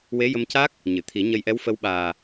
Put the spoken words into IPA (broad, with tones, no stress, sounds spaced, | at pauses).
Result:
w e˧˥ j ə˧ m c a˦˥ k̚ | ɲ ɨ˨˩˨ t̪ʰ i˨˩˦ ɲ ə˧ j ʔ ɛ˧˥ w f ə˧˥ w ɓ aː˨˩